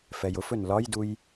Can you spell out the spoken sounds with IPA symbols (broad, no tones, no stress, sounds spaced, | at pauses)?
f ɛ j ʊ f ɵ n l ɒ j d u j